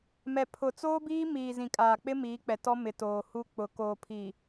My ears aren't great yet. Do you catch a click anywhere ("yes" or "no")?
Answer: no